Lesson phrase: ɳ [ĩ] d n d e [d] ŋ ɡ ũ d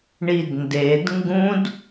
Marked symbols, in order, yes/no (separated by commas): no, yes